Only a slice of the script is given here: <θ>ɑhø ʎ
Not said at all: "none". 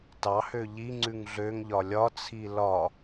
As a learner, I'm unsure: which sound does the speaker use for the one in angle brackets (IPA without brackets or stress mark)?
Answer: t